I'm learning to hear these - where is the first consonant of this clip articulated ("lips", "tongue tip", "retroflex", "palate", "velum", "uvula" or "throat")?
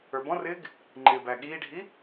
lips